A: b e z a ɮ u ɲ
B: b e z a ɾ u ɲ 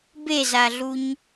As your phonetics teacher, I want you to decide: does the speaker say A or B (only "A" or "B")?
A